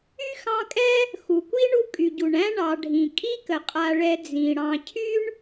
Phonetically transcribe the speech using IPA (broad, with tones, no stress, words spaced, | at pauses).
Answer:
y˥xɑ̃˦kʼɛ˥ | xu˩kʷi˥ɳu˦ kʼy˩ɟu˩ɳæ̃˦ ɳɑ˨ɖʱĩ˩ kʼi˥kə˩qʼa˨ɭɛ˨ d͡zĩ˩ ɽɑ̃˨ cʰy˥ɳ